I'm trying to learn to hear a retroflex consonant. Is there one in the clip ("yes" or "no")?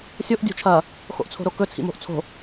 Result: no